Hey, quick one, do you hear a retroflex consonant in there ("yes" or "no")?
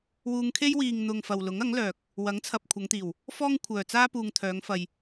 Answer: no